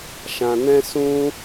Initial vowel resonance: nasal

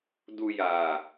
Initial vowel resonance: oral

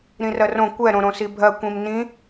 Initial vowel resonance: nasal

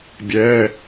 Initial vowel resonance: oral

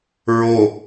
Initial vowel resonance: oral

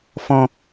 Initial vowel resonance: nasal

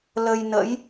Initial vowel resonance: oral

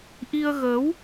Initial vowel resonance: oral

